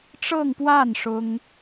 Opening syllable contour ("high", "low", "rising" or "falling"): falling